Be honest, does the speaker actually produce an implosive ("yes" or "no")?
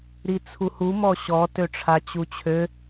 no